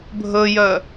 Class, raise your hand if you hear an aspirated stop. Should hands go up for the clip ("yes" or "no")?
no